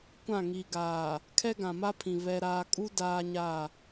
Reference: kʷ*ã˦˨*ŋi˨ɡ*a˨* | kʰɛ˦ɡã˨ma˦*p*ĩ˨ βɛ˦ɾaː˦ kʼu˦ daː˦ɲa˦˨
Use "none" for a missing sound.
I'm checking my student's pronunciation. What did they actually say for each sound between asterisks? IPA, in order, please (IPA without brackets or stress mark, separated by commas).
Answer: ã˦˨, aː˨, pʰ